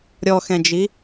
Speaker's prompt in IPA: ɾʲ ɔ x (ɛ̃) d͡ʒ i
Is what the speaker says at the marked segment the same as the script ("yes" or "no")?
yes